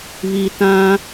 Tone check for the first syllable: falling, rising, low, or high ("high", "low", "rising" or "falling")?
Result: low